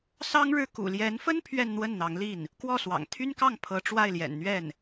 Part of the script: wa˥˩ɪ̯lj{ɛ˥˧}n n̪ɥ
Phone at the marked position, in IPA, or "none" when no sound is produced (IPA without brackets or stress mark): ɛ̰˨˩